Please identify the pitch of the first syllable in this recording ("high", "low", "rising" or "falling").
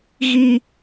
high